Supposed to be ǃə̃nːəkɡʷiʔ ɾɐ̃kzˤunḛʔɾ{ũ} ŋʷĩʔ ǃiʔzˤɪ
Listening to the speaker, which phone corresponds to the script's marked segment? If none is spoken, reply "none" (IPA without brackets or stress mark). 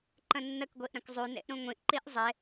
ũ